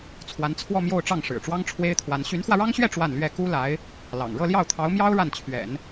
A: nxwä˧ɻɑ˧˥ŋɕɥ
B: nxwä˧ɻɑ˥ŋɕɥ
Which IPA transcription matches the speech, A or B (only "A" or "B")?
B